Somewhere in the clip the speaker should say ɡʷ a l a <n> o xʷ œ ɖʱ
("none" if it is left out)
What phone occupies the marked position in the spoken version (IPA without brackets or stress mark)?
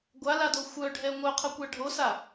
d